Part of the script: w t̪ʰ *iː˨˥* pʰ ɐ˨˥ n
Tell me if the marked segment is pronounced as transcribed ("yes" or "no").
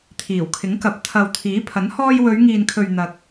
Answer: yes